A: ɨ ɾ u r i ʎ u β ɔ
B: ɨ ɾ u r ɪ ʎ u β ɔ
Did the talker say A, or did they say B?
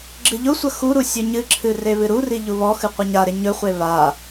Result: A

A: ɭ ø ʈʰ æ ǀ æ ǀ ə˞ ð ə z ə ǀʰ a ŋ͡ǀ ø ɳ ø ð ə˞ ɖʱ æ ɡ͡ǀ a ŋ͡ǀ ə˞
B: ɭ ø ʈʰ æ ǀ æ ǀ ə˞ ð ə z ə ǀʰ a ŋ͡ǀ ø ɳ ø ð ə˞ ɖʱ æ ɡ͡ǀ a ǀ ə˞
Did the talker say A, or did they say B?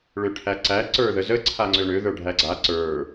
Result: B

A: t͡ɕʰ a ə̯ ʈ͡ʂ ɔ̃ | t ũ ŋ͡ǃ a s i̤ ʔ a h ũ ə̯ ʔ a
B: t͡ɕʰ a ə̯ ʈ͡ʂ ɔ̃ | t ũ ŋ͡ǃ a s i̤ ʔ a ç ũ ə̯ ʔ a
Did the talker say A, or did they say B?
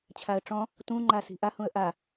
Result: A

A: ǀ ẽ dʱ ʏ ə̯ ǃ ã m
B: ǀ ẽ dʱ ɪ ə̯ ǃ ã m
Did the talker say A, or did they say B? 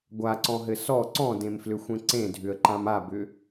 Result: A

